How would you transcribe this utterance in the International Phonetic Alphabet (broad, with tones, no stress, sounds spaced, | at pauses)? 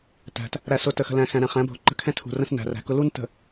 t æ̤˨ t | ɾ æ˨ s ʊ˨ t ə˨ x ə̤˨ l æ̃˨ x æ̃˨ ɾ æ̃˨ χ æ̃˨˦ bʱ ʊ˨ ǃ ə̤˦ kʰ ɛ̃˦ tʰ ṳ˨ r ə̃˦ s n æ̤˨ r æ̤˨ k ʊ˦ l u˦ n t ə̤˨